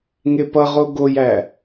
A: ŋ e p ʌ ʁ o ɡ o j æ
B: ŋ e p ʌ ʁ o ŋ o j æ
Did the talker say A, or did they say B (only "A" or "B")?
A